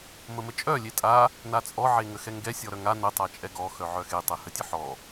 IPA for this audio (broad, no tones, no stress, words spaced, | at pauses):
məmət͡ʃʼœ lʲetʼa | nat͡sʼɔ ʕeŋəxɛŋɡɛ sʲɔɾœŋa nə tˤat͡ʃʼɛɡɔ xœʕœxe tˤɛhətʲəħɔ